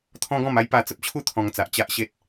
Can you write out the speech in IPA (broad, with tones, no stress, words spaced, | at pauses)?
t̪ʰɔ̃˦ɡɔ̃˥˧m a˦jpa˧t͡sə˦p̚t͡ɕʰu˥˧ t̪ʰɔ̃˧ŋt͡sa˨ʔ t͡ɕa˦ʔɕe˦t̚